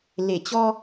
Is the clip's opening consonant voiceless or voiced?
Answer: voiced